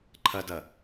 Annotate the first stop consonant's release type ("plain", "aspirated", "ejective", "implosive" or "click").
click